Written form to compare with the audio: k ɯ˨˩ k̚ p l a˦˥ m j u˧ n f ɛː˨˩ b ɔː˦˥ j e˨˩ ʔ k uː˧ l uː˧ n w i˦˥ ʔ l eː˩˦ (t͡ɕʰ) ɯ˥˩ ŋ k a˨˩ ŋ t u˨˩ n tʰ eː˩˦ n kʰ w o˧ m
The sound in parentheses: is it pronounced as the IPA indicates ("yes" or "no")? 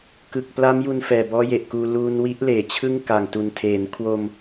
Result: yes